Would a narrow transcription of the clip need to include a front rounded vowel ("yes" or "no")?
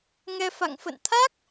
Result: no